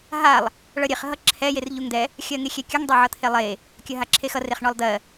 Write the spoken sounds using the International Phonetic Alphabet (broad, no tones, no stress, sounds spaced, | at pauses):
ɦ a lˠ | ɭ ʌ ɾʲ e χ ɦ ʌ ǁʰ ɛ j e r ʎ u ŋ d̪ ɛ | xʲ ɜ ŋ e xʲ ɛ kʲ ə ŋ dˤ ɛ ʕ ʌ t̪ʰ e lˠ e | kʲ ɜ ɦ a ǁʰ e x ʌ r e χ ɳ ɔ lˠ d̪ ɜ